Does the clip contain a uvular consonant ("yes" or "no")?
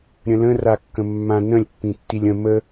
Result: no